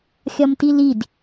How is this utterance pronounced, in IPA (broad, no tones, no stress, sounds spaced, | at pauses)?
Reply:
xʲ ɒ m t i l i d